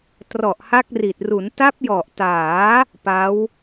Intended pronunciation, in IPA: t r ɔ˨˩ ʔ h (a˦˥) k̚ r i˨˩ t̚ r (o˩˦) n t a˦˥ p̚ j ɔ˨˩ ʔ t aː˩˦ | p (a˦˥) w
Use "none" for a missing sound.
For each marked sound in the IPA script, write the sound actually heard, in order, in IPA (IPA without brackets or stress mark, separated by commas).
a˦˥, u˩˦, a˦˥